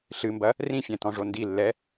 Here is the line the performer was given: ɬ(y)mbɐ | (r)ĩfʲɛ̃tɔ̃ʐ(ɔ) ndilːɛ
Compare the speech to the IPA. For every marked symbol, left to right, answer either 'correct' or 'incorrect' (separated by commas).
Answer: incorrect, correct, incorrect